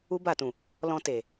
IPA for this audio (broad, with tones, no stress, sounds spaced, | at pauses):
u˦ b a˦˨ t ũ˨ | l ɔ̃˧ t e˨